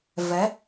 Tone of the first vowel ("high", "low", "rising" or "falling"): rising